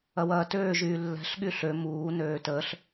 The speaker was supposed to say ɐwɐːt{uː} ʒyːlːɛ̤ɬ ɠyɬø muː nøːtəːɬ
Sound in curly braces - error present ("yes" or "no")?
yes